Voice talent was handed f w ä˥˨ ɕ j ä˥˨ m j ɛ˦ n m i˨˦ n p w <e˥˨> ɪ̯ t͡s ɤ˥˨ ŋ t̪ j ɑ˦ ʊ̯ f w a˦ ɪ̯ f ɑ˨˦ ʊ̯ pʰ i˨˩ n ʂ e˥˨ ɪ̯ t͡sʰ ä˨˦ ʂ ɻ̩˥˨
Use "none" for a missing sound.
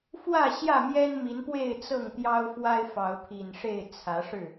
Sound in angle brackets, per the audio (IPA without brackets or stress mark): e˥˨